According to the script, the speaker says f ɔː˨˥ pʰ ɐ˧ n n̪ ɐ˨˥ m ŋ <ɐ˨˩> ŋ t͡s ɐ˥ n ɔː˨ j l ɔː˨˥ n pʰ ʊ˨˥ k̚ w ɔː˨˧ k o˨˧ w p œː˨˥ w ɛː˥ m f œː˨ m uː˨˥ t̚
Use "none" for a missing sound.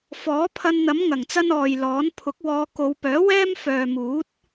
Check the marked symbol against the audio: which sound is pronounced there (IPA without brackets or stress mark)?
ɐ˨˩